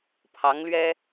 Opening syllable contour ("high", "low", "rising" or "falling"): rising